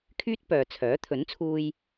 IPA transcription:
kʰyː˥t̚pœː˨t͡sʰœː˨˥ t̪ʰɵ˨˥nt͡sʰuː˧j

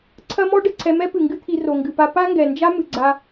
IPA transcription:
ǀʰɐ˦mɔ˦ ɖɘ˨ǀʰɛ˧mɛ˦pɨ˨ ŋɡɨ˦t̪ʰi˧ ro˨ŋɡɨ˨pa˧ pa˦ŋɡɛ˨ nd͡ʒa˦ mɨ˨ɡ͡ǀa˧

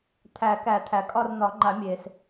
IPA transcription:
t̪ʰæ˨˩˦kæ˨˩˦ t̪ʰæ˩kʼɒ˦˨rn̪ɒ˨˩˦ŋ͡ǃa˨˩˦ mʲe˩s

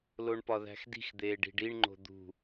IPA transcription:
loɳpɒðæ̤xdi̤x d̪eːɖi̤ɖiɳŋ͡ǃo̤ d̪ṳ

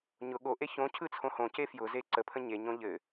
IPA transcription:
ɲʊ ɠoʔe çõ cʰɯt͡sʰõhõce fjʊze ǀəpʰə̃ ɲeɲõ ʎɘ

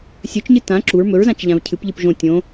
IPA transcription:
sʲɵt͡ʃɲɨ tã ǁuɹ mɵɹzãt͡ʃ ʎãvcʰɨpʎɨp ʒõ tʲõ

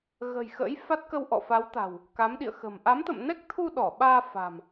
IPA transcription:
ɣə̤˨˩j xə̰ː˧˥jfa˦˥t̚kə˧w ʔɔ̰˧˨fa˨˦wt̪a̤˨˩w | ka˨˦mɗḭ˧˨ə̯xə̤˨˩m ʔa˨˦mt̪ə̰˧˨mnɛ˦˥k̚t̪ʰu˧ ɗɔ˧˩ɓaː˧ fa̤˨˩m

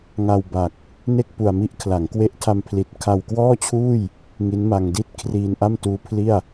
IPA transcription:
ŋa˧wba˨˩k̚ | ne˥˩k̚ pu˨˩a̯ mi˦˥ʔkʰla˩˦ŋ kwe˦˥ʔtʰa˧mpʰli˨˩t̚ kʰa˧wkwɔː˥˩t͡ɕʰuː˥˩j | ŋi˦˥nma˧ŋdi˥˩t̚ kʰriː˧nʔa˥˩mtuː˦˥pʰli˥˩a̯

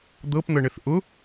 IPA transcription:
d̪ɤpn̪ɤɳɘθ ʔʊ

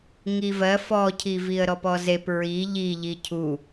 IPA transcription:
ŋivɜ fɔcʰi viə̯ɾɔpɔzep ɹi ʎiʎi cʰu

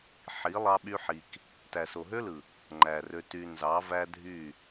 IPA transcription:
ħi˨˦ lˠɑ˧ɓy˧ħi˨k | tæ˨so˨ɦø˦lɯ˨ | ŋ͡ǃæ˨rø˧ ty˧ nzɑ˨˦væ˦dʱy˦˨

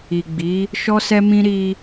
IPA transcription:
i˨ɡ͡bi˨˦ | ʃɔ˦sɛ˦mĩ˦ ɾi˧

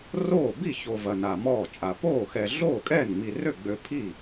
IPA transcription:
roː˥˩ bi˥˩ ço˨ vɐ˨na˨mɔː˥˩t͡ʃʼa˨ poː˥˩xɛ˨ ɮoː˥˩kʼɛː˥˩nŋ͡mi˨rø˥˩ ɡ͡bø˨ pʰi˥˩

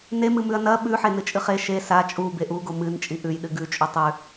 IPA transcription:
nemɨmʉɐ̯ nɐ ɓʉħenɨt͡ʃʼɨ χe ʃe sa t͡ʃʼube ʔuɡo mɨnt͡ʃʼi ʔʉjɗɨ ɡʉt͡ʃʼu tˤʉ

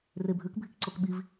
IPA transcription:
rebʱʉk bʱikǀokɓiv

